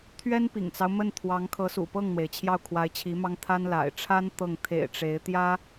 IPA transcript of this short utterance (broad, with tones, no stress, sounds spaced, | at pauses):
t̪ʰ ɥ ɛ˥ n p ḭ˨˩ ŋ t͡s ɑ˦ ʊ̯ m ə˥˩ n t̪ʰ w ɑ˧˥ ŋ kʰ ɤ˧˥ s ṵ˨˩ p ɤ˥˩ ŋ n̪ w e˩ ɪ̯ t͡ɕʰ j ɑ˥˩ ʊ̯ kʰ w a˧˥ ɪ̯ t͡ɕʰ i˧˥ m ɑ˥ ŋ t̪ʰ a˥ n l a̰˨˩ ɪ̯ ʈ͡ʂʰ a˥ n t̪ ɤ˥˩ ŋ t̪ʰ ḛ˨˩ ɪ̯ ʈ͡ʂ e˧˥ ɪ̯ t̪ j ä˥